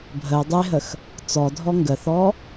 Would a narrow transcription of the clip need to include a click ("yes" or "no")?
no